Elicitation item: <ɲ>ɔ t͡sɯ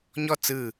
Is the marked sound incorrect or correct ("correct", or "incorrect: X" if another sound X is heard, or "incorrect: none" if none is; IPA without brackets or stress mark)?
correct